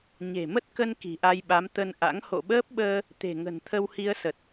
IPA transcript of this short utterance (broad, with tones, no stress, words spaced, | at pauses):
ɲe̤˨˩mə˦˥t̚kə˧n ki̤˨˩ʔa˧jɓa˨˦m t̪ə˧nʔa̰˧˥ŋ ho̰˧˨ɓəː˦˥p̚ɓəː˧ | t̪e̤˨˩ŋə̤˨˩n t̪ʰə˧whi˧ə̯sə˨˩t̚